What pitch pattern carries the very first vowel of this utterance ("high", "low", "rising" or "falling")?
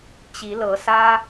rising